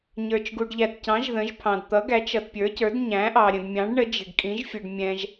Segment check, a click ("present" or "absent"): absent